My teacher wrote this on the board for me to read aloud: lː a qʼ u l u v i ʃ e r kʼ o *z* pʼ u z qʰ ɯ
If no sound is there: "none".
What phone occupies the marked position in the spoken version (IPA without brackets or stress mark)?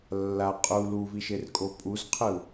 none